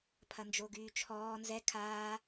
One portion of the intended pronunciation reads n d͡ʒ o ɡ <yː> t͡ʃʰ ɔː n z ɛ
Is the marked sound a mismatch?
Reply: no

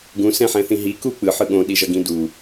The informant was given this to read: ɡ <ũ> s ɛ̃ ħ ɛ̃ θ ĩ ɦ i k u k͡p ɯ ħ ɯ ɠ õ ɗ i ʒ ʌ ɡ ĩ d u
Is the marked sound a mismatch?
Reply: no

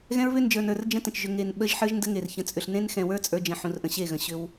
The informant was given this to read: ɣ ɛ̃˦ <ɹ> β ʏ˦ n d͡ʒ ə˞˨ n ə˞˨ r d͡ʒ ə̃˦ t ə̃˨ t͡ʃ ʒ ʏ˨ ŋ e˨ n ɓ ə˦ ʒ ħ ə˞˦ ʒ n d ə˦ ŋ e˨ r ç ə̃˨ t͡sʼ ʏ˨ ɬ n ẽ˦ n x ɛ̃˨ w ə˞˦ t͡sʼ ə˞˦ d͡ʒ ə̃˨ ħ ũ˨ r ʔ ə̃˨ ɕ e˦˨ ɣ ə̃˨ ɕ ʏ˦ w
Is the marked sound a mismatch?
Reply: no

